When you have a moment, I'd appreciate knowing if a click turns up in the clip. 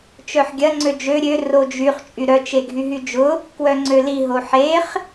yes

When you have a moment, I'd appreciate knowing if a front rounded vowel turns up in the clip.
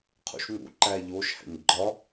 no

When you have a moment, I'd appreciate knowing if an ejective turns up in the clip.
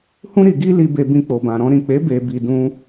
no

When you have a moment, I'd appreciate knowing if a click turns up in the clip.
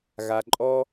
yes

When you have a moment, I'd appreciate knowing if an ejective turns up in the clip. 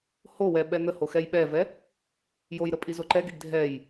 yes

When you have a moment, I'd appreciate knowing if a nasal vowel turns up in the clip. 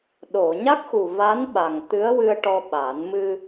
no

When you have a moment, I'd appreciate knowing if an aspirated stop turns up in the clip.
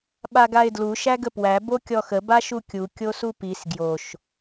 no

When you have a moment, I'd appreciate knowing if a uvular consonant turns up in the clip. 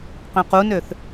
yes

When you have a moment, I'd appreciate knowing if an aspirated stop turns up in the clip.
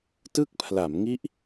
yes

